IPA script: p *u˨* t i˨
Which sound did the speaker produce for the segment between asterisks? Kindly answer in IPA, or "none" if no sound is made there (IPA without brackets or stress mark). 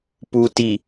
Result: u˨